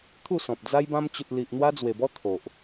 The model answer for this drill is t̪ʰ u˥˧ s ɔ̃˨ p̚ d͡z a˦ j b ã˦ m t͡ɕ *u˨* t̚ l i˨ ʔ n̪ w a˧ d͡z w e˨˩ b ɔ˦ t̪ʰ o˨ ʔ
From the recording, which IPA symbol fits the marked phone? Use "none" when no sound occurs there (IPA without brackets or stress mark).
u˨